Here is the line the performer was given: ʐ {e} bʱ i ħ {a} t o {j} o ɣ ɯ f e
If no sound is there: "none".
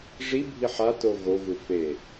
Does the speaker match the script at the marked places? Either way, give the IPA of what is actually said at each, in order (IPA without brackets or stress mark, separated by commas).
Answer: i, a, ɣ